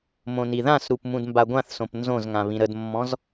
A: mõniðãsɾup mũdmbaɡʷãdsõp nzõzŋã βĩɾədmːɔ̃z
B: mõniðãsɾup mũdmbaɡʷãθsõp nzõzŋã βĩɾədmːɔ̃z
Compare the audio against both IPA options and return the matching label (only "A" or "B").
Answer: B